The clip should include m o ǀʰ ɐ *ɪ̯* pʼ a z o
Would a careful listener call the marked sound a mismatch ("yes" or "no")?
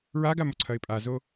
no